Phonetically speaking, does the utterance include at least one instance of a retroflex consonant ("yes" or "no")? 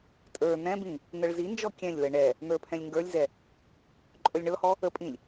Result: yes